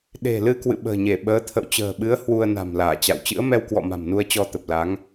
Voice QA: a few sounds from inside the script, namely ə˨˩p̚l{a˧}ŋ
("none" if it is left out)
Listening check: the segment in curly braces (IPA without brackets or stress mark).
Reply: a˨˦